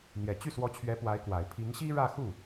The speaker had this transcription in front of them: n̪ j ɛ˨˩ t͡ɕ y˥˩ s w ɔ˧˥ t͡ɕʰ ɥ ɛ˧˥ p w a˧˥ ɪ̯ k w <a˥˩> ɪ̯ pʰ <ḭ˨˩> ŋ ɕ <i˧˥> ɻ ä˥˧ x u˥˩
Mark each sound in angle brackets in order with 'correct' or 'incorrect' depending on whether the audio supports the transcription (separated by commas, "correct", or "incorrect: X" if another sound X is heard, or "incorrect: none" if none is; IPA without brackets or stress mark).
incorrect: a˨˩, incorrect: i˧˥, incorrect: i˥